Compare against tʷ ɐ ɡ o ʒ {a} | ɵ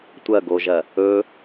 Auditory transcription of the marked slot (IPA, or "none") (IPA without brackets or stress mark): ɐ